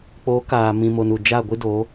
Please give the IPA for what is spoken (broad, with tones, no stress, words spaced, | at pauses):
k͡po˨˦ kaː˨ mĩ˨mo˨n u˨ d͡ʒa˦˨ɡʷɨ˦do˨˦